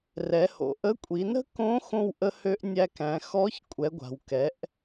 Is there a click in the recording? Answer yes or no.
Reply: no